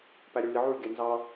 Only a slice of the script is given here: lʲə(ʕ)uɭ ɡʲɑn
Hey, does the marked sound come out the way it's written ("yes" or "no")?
yes